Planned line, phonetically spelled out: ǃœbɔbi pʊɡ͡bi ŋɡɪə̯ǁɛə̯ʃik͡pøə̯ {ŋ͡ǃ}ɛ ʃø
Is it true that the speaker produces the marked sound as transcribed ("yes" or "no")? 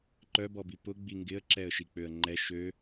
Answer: yes